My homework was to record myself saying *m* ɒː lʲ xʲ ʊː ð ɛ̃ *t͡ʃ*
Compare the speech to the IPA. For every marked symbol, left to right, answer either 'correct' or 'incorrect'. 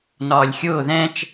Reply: incorrect: n, correct

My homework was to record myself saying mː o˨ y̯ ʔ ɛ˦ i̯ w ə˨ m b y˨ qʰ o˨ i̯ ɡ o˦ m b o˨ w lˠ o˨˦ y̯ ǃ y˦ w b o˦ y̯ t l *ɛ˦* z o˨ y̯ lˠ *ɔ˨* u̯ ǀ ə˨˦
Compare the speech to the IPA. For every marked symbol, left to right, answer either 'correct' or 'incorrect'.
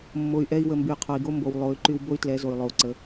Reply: incorrect: ɛ˨˦, incorrect: o˨

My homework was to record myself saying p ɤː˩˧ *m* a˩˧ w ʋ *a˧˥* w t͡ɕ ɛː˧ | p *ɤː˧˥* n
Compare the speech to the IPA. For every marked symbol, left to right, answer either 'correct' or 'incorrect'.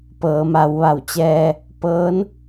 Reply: correct, incorrect: a˧˩, correct

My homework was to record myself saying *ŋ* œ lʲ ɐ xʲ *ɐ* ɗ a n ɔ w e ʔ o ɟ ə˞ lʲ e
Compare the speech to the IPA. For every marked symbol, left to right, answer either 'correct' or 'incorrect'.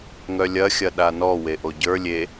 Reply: correct, correct

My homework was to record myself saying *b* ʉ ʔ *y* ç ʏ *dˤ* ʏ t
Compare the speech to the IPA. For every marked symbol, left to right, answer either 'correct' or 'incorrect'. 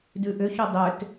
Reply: incorrect: d, incorrect: ʏ, correct

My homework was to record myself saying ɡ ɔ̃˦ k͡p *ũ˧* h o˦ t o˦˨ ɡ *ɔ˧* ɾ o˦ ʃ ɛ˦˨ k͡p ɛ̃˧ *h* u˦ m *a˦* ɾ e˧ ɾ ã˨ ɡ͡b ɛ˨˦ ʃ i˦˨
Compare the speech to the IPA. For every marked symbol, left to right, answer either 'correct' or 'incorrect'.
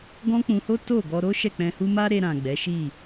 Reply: correct, correct, correct, correct

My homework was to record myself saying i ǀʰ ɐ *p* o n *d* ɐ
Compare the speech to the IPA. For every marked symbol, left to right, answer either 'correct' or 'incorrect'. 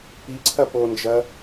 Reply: correct, incorrect: d͡ʒ

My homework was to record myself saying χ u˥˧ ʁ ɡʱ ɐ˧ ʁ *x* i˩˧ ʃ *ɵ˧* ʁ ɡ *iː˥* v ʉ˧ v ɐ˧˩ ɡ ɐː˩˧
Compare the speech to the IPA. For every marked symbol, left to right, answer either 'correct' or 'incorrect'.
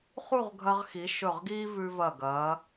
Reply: correct, incorrect: ɵ˧˩, correct

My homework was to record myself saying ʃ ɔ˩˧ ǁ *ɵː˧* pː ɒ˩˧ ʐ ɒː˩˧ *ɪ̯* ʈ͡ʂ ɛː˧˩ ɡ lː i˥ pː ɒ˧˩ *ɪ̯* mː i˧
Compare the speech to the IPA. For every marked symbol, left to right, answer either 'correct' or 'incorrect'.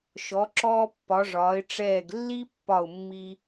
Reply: incorrect: ɔː˧, correct, incorrect: ʊ̯

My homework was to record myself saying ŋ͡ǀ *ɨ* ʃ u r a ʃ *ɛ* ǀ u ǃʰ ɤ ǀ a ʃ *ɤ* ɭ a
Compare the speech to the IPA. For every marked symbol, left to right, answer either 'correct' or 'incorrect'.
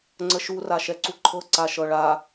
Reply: incorrect: ə, correct, correct

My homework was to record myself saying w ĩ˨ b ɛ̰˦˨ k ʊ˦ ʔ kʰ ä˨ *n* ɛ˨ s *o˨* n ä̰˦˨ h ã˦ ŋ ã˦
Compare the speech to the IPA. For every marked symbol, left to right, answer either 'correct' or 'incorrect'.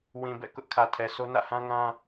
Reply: incorrect: tʰ, incorrect: o˦

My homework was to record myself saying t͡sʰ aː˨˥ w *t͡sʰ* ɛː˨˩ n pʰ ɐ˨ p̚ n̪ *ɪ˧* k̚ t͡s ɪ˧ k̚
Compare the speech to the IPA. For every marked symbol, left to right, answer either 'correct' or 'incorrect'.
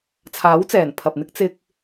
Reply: incorrect: t͡s, incorrect: ɪ˥

